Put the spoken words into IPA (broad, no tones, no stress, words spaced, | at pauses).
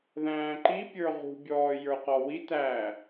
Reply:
ðæ̃ːǃi pʲə˞ʁṳ bʲɔːjə˞qɔwi tæː